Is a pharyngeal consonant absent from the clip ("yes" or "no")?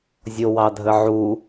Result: no